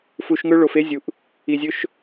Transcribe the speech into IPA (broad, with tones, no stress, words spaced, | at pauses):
fu˧ʃŋɵ˦ ɭo˧fe˦ zʲu˧ʔ | i˧zʲɵ˦ʃ